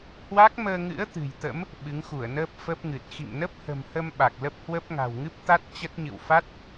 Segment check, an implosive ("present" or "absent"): present